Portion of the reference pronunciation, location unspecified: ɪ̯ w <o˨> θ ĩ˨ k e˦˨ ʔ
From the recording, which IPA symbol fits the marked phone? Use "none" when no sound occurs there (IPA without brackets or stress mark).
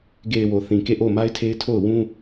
o˨